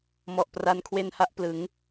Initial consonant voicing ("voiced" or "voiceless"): voiced